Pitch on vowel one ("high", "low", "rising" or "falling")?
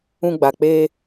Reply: high